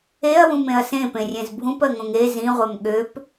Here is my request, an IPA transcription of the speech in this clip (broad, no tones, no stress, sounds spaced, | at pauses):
e ɐ̯ w ũ m ẽ ɐ̯ s ẽ p ẽ rʲ ẽ z bʱ ũ p ɜ ŋ õ ŋ e z ĩ ʁʷ ɜ m ɠ ø p